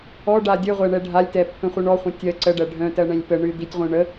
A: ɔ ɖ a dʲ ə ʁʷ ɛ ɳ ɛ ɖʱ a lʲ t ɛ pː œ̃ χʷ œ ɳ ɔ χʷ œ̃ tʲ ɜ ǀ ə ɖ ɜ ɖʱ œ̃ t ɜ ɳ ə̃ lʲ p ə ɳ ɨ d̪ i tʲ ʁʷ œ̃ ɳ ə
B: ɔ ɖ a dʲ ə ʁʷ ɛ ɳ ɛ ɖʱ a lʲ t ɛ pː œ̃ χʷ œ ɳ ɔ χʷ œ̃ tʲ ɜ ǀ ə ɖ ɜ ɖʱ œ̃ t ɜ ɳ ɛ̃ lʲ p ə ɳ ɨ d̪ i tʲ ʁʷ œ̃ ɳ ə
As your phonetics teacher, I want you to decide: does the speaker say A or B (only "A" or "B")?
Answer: B